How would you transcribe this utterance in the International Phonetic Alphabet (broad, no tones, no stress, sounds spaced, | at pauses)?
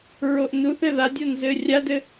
ɹ o ʔ n u θ ɘ ð a dʲ o n z ɘ rʲ a d ɘ